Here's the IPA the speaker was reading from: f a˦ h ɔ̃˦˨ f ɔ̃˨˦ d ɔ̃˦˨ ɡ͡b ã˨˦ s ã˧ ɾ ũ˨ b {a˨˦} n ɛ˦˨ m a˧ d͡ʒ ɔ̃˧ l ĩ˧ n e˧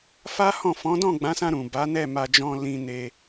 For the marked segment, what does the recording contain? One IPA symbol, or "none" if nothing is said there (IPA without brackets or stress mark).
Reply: a˨˦